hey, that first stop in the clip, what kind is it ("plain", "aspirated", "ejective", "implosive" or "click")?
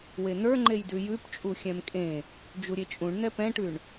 click